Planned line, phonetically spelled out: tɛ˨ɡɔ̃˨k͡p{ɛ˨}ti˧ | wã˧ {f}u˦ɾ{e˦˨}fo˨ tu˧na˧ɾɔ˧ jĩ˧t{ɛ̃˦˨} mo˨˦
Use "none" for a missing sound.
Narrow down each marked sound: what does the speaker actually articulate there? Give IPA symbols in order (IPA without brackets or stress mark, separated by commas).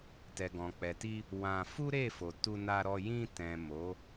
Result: ɛ˨, f, e˦˨, ɛ̃˨